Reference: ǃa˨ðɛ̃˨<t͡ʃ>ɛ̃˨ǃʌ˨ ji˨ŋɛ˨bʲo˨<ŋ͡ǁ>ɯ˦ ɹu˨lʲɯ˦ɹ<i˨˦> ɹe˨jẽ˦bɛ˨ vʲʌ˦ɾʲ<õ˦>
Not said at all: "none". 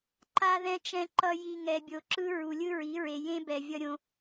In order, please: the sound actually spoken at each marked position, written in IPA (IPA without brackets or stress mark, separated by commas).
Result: t͡ʃ, ǁ, i˨˦, õ˦